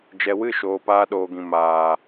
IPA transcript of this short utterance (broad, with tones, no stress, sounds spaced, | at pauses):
d͡ʒ ɛ˨ w ɨ˦˨ ʃ oː˨ p aː˧ ɗ oː˨ ɡ ĩ˨ m aː˨